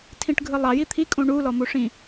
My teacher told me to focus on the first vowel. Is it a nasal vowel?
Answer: yes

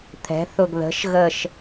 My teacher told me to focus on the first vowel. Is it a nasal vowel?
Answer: no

